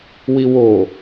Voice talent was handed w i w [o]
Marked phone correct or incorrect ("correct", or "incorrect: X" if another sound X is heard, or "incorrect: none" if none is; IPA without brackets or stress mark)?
correct